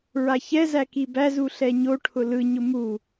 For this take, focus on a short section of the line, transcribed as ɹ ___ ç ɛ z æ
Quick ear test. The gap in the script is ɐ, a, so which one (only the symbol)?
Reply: a